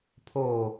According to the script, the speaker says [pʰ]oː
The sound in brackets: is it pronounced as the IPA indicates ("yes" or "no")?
yes